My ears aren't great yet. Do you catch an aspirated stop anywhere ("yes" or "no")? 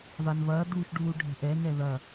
no